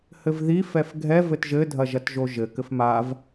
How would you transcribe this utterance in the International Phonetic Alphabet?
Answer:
h ɘ v ð i f ɛ f ɡʱ ɛ v ɘ t ʒ ɘ dʱ ɐ ʒ ɐ t ʒ o ʒ ɘ k ɘ f m a v

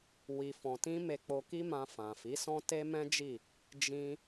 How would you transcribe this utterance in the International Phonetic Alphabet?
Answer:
w i˨ f ɔ̃˨ t ĩ˧ m e˧ k͡p o˧ k i˦ m ã˧ f ã˨ f i˨˦ s ɔ̃˦ t e˦ m ɛ̃˦ d͡ʒ i˦˨ | d͡ʒ ĩ˦

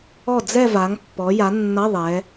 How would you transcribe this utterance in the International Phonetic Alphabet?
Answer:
ɔ˥˩ d͡z ɛ˥˧ v a˩˧ ŋ pː ɔ˩˧ j a˩˧ nː ʌ˧˥˧ ðˤ ɛ˩˧

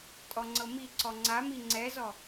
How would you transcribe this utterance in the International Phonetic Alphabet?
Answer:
tʼ ɔ ŋ͡ǀ ɤ m i ǀ ɔ ŋ͡ǀ a m i ŋ͡ǀ ɛ z ɔ

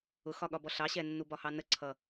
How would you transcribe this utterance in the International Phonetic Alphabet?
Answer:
ʊ x ɒ ɠ ɒ b ɔ ɬ ɑ ɕ ɛ nː u b ɒ h ɑ n ə ǀʰ ʌ

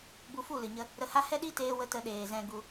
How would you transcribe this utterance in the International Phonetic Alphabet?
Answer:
b u˧ f u˦˨ l ɨ˨ ɲ ə˧ | ɾ ə˧ h a˦ h ɛ˦ ɗ i˦ t eː˧ w ə˧ t ə˧ ɗ eː˨ z ɛ̃˧ ɡ u˧

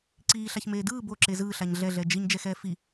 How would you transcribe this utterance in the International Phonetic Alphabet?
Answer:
ǀ iː ɬ a ç m eː d ɯː b o ǁ e z ɯː ɬ a ɲ ɮ ɛ ɮ ɛ d͡ʒ i ɲ d͡ʒ ɛ x ɛː f i

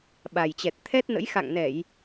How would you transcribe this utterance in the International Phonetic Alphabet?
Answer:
ɓ a˨˩ j t͡ɕ ɛ˨˩ t̚ t̪ʰ ɛ˦˥ t̚ n ə̰˧˥ j x a̰˧˨ ŋ n ɛ˧˩˨ j

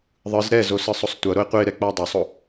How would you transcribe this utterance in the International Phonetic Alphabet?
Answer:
ðˤ ɯ z ɾ ɛ z o s ɯ sˤ o sˤ tʷ ʌ ɾ o e̯ qʷ e ɾ ɛ k͡p a dˤ o sˤ o

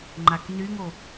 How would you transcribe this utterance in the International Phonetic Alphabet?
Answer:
ŋ͡ǃ a k n y ŋ o

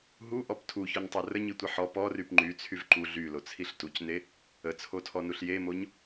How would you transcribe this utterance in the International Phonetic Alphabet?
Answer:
ɦ u ʔ ɔ p tʰ u ç ɔ ɲ tˤ o r ə ɲ i tʷ i ħ ɔ p ɔ r y p ŋ͡ǃ y t͡sʰ y v ǃ u ɮ y l o t͡sʰ i ɬ t u c n e | ə t͡sʰ o tʰ ɔ n u ɬ j e m o ɲ

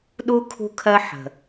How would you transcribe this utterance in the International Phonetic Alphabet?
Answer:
ɗ u˧ kʰ ṳ˧ kʰ ɜ˧ ħ ə̤˨

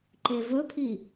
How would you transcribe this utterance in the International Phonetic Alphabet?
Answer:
ǃ e v ɵ pʰ i

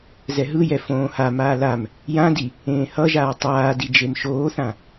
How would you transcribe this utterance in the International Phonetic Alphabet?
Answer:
z ɛ ɦ ɯ j ɛ f õː h a m aː l a m | j ã d i | ẽː h ʌ ʒ aː tˤ aː d i d͡ʒ e m ʃ oː θ ã

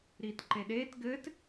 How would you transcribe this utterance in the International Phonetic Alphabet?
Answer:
ɾ iː t ǃ e ɗ eː t ɡ ɘː t

